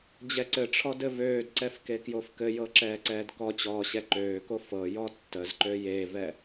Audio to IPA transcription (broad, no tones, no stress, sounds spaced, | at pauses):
d͡ʑ ɛ ǀ ɘ ʈ͡ʂʰ ɔ d ɘ v øː d ǀ ɛ f k e k j o f k ɘ j ɤ ǁ ɛː ǀ ɛː d k ɔ t͡ɕ ɔː ɕ ɛ ǃ øː k o f ɤ j ɔ tː ə z ǃ ø j e v ɛ